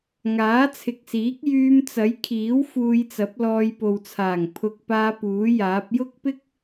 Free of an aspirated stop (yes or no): no